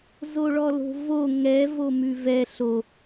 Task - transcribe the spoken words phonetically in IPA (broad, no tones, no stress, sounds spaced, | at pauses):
z o ɭ ɔ l o̤ v o ŋ ɛ v o m ʉ v ɛ ɬ o